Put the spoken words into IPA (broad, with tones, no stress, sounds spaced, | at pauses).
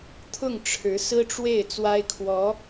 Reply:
t̪ʰ ʊ˥˩ ŋ ʈ͡ʂʰ ɻ̩˧˥ s ɹ̩˥ ʈ͡ʂ w e˥˩ ɪ̯ t͡s w a˥ ɪ̯ kʰ w ɔ˧˥